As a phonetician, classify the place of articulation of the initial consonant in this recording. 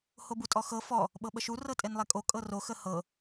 glottal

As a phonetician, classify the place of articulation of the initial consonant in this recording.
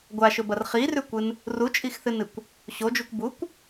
velar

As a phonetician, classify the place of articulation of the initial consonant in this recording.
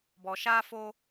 labial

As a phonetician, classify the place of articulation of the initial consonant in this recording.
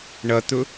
retroflex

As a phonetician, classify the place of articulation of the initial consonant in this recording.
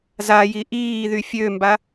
alveolar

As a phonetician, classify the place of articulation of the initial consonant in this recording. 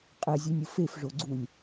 uvular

